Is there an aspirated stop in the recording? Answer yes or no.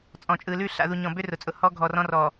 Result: no